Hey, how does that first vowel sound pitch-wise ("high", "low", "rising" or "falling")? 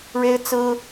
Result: high